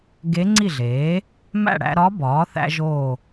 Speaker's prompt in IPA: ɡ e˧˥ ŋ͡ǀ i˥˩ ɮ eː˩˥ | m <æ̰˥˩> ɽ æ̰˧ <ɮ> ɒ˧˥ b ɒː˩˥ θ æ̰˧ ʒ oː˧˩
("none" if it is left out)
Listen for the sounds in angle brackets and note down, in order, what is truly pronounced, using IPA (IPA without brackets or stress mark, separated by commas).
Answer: æ̰˥˩, ɾ